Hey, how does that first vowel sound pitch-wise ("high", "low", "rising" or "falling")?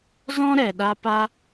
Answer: high